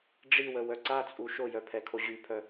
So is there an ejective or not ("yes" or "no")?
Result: yes